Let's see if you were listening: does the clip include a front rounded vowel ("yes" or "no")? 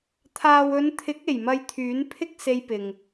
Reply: yes